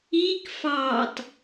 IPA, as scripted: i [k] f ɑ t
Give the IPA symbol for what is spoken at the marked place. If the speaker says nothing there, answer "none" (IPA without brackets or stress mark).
k